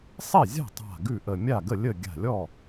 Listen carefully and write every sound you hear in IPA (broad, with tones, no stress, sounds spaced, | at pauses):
sˤ e˥˩ zʲ a̤˥˩ tˤ a̤˧˩ ɡ ʉ˥˩ ʔ ə˧˩ mʲ a˥˩ ɡ ə˥˩ lʲ ə˥˩ ɡʲ a̤˧˩ lʲ ɔ˥˩